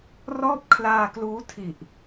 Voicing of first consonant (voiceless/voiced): voiced